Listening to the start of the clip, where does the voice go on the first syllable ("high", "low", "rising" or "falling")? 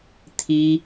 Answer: high